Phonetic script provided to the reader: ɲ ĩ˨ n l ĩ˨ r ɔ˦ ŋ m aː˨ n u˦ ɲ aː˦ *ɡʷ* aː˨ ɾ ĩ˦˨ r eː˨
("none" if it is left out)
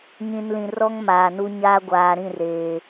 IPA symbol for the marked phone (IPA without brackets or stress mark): ɡʷ